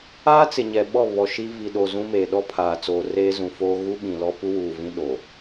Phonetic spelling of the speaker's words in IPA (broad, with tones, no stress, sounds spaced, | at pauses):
aː˦ t͡s ɪ˨ ɲ ɛ˨ ɓ ɔ˦˨ β ɔ˨ ʃ i˦ v i˨ ɗ o˨ z ũ˦ m eː˨ ɗ ɔ˦ pʰ aː˨ t͡s oː˨ r eː˦ z ũ˨ f oː˦ ɣ u˦ ɓ ĩ˨ l ɔ˦ p u˦ w uː˨ v ĩ˦ ɗ o˨